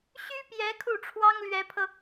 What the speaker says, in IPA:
ɕy˥pjɛ˧˥ kʰu˥˩ʈ͡ʂʰwɑ˥ŋlɥɛ˧˥pʰɤ˧

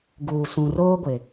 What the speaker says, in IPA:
ɡuː˨ sũ˨roː˦ɡʷɪ˨

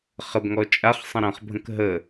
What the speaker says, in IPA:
χəbŋɔ t͡ʃʼaχ sˤə̃ɾɐ̃χbʱə̃k ɦə

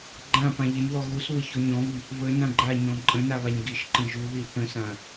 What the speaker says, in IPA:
ɡ͡ǃãpã ʎɪnðɔ ɣusβə çɔɲɔ̃βi | βə nãɡ͡ǃaɲɔ̃ ǃʼə̃na βaɲɡiʃǃə̃ ʒuði θə̃sã

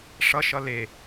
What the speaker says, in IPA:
ʂʌ ʃʌle

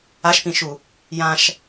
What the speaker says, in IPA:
aʃpĩʃu | jãʃ

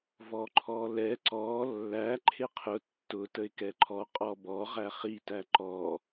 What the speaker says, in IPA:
vɔǃʰɔlɛ ǀɔ lːæ ǃʰɪqʰʊ tːʊ təɪ̯kɛǃʰɔ qʼɔbɔ ʁæχi tæǃɔ

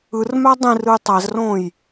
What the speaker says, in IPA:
ɯrmæ dˤĩrɯj tˤæzrõːj

